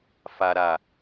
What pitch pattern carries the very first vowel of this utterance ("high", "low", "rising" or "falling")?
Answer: low